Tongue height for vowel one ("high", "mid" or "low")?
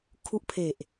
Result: high